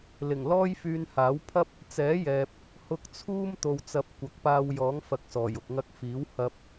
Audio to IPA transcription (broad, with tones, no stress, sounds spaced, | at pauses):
l ɪ˨˩ ŋ l ɔː˥ j f yː˧ n h aː˨˥ w pʰ ɐ˥ p̚ | t͡s ɛː˨˥ j ɛː˨ p̚ | h ʊ˧ k̚ t͡sʰ uː˥ m t̪ o˨ w t͡s ɐ˨˥ p̚ kʷ ɐ˨˥ k̚ p aː˧ w j ɔː˨˥ ŋ f ɐ˨ k̚ s ɔː˨˩ j ʊ˨ k̚ ŋ ɐ˥ k̚ f iː˨˥ w h ɐ˧ p̚